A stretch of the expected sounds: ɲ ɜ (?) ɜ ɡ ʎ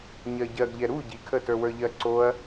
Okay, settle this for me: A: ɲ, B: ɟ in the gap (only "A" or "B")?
B